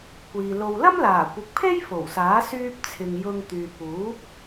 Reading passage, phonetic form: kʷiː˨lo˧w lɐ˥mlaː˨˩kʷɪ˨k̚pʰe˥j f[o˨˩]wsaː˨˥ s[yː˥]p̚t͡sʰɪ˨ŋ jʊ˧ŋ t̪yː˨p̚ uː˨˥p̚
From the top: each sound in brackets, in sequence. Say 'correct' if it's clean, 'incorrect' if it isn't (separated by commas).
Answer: correct, incorrect